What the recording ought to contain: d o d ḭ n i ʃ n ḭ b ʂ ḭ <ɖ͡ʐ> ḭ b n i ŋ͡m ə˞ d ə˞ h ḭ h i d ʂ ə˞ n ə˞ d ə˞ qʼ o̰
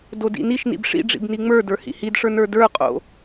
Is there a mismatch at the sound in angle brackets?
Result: no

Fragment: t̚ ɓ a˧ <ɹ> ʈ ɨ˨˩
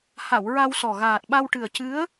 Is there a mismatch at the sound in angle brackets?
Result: yes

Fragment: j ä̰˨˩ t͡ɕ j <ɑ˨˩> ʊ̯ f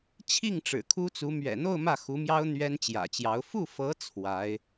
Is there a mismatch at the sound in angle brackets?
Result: yes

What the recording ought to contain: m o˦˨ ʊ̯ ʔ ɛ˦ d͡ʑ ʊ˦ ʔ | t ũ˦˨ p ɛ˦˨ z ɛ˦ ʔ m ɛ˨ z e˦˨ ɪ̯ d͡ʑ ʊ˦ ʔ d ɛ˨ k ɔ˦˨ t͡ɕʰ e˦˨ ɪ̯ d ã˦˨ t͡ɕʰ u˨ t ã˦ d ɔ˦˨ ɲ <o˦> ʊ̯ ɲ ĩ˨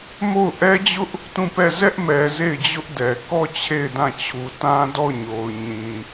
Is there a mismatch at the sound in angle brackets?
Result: yes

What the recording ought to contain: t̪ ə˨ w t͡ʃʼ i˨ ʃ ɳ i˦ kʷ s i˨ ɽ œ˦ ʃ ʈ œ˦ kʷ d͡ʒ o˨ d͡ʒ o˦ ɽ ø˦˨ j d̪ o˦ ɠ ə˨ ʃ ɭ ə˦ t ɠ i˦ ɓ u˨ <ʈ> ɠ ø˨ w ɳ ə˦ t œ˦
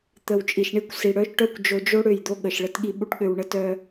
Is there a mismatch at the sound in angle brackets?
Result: no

